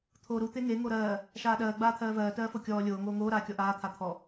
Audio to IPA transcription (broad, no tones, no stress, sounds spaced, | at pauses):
t̪ʰ oː ɾ u t̪ e ŋ e ŋ o ɾ ɜː | ʃ aː ɗ ɜː ɡ͡b aː t̪ʰ ɜː v ɜː t ɜː f o kʲ ɔː lʲ oː ŋ oː ŋ oː ɾ aː kʲ ɔ ʔ aː t̪ʰ a t̪ʰ ɔ